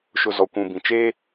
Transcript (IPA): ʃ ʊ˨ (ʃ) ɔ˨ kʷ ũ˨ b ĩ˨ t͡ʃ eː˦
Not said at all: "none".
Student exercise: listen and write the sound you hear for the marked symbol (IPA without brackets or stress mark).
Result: z